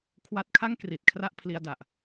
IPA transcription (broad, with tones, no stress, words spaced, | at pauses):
kʰwa˦˥t̚kʰa˥˩ŋ kri˨˩t̚ kʰra˥˩ʔpʰli˧a̯da˨˩ʔ